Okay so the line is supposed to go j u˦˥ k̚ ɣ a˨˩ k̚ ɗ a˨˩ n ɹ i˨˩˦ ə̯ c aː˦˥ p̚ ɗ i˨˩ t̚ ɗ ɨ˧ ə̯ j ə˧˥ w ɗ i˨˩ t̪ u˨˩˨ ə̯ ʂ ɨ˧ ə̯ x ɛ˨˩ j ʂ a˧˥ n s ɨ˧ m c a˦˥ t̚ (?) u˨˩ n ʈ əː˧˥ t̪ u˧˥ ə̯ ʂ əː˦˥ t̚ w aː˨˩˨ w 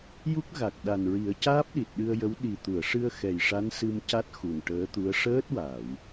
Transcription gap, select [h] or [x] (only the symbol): x